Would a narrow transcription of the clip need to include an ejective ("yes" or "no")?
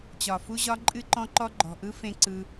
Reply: yes